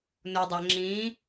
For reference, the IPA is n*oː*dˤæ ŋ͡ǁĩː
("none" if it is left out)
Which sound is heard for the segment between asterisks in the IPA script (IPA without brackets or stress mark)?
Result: o